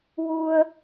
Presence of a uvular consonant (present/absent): absent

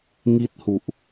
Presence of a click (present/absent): absent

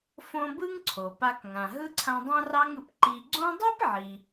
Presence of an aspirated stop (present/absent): present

